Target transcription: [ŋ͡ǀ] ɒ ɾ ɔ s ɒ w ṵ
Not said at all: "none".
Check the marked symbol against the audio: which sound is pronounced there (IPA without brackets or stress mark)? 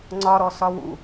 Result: ŋ͡ǀ